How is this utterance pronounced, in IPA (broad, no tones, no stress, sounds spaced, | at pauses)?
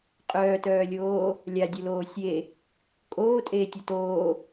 qʼ œː t œː lʲ oː | lʲ a dʲ o l oː sʲ e | kʼ oː tʼ eː tʲ o t oː